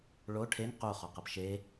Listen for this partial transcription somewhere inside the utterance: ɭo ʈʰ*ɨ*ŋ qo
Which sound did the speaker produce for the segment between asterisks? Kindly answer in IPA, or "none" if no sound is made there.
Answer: e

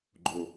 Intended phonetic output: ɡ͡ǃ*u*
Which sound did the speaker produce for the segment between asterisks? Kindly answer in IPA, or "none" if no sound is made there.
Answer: o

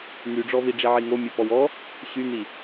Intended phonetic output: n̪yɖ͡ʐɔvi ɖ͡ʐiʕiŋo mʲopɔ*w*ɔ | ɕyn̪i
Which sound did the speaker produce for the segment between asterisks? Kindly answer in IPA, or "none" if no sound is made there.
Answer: w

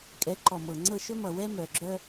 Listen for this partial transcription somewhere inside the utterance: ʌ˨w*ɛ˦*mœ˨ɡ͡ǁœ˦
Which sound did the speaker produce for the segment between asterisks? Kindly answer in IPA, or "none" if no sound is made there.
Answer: ɛ˦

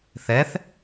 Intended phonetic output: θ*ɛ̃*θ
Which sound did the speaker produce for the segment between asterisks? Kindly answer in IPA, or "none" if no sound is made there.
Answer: ɛ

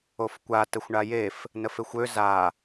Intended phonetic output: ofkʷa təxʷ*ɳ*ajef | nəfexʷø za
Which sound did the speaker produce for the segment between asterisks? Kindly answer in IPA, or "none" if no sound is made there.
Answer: ɳ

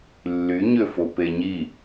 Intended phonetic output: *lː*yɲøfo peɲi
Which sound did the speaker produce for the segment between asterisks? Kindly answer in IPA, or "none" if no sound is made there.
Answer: lː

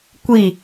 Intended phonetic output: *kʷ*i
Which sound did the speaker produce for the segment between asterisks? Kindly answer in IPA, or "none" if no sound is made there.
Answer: kʷ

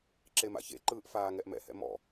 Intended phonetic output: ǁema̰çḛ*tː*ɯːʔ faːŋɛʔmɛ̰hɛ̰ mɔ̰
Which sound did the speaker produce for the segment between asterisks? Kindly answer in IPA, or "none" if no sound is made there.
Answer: ǃ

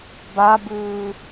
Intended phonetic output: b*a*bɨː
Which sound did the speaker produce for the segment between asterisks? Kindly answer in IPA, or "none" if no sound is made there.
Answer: a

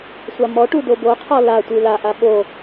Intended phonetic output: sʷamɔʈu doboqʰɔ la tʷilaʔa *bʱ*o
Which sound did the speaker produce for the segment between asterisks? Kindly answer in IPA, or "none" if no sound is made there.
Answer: ɓ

